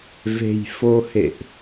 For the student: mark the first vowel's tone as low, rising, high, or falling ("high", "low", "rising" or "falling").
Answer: low